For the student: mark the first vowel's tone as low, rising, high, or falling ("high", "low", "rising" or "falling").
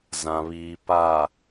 low